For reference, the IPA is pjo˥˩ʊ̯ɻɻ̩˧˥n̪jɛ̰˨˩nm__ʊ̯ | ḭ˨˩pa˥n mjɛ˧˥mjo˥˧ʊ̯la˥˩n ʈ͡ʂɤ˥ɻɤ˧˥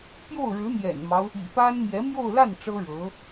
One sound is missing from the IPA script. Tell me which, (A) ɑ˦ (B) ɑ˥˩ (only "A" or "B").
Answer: A